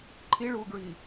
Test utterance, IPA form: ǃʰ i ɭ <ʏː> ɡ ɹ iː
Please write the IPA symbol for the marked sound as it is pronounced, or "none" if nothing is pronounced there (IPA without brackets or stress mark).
uː